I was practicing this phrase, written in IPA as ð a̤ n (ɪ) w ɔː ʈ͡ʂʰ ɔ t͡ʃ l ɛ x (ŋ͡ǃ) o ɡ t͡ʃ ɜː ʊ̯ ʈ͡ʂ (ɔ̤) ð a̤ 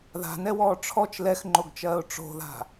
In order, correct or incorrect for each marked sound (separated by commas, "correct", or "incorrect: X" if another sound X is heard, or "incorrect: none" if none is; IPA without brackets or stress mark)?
incorrect: ɛ, correct, incorrect: o̤